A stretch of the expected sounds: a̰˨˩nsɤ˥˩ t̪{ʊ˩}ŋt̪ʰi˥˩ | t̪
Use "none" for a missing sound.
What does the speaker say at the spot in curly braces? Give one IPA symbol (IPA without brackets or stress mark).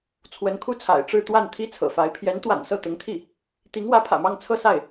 ʊ˧˥